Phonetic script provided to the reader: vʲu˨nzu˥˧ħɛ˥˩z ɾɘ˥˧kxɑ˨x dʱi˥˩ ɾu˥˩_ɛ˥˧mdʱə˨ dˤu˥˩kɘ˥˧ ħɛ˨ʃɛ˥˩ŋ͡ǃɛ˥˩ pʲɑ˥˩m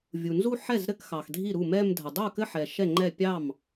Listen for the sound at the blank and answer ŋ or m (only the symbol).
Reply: m